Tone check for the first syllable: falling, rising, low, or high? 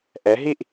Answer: rising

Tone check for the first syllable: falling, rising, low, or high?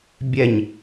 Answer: falling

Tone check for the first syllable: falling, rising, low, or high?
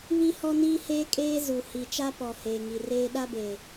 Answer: high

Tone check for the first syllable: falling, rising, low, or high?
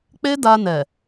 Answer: high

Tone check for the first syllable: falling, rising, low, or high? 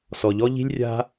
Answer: low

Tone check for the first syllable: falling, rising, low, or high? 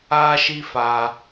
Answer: high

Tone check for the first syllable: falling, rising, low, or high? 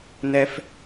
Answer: high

